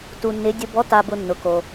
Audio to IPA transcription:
tu˨nːɪ˨˦ dʲʊ˨bɔ˨˦ta˨bʊ˨ nːʊ˨ko˨

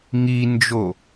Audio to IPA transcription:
ŋind͡ʒo

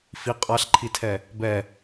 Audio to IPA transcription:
fi qʼaɬǃʰitʰɛ | bɛ

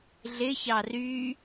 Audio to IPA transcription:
ɮɪçɑ ry

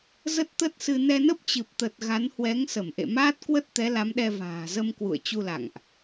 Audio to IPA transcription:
zə˦˥t̚t̪ə˦˥t̚sɨ˧ nɛ˧nə˦˥p̚t͡ɕɨ˨˩p̚t̪ə˨˩t̚ ɣa˨˦nhwɛ˨˦ŋ sə˧˩mʔḛ˧˨maː˦˥t̚kwə˦˥t̚ t̪ɛ˨˦la˨˦mɗɛ˧ va̤ː˨˩zə˧m kwṵ˧˨ə̯t͡ɕu˧la̰˧˨ŋʔ

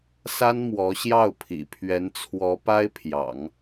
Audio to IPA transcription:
sa˥n mwɔ˧˥ɕjɑ˥˩ʊ̯ pʰḭ˨˩pʰɥɛ˧˥n t͡sʰwɔ˧˥ pa˥ɪ̯pʰjɑ̰˨˩˦ŋ

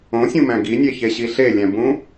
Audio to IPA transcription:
õsʲũmæ̃ ɡinʲeçeɕi ɬelʲæ̃bũ

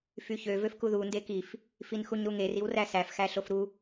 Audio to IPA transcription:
fyçø vøfkuðu ndekif | finxuɲɾuŋer iwræsæf xæɬofɾu

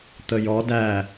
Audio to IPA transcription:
t̪əjɔ dæ

